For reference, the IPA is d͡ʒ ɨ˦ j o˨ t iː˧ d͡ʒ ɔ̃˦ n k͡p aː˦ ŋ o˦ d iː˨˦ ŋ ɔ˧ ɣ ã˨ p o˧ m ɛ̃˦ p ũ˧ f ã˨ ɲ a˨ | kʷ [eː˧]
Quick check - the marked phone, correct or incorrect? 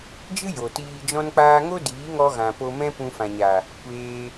correct